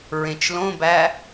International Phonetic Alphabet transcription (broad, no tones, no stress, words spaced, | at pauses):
ɹẽt͡ʃlõbæ